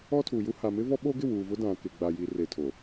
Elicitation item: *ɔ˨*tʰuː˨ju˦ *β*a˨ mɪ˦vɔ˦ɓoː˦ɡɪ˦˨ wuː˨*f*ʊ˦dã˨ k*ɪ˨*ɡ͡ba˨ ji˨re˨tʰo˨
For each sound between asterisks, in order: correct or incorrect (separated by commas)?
incorrect, incorrect, incorrect, correct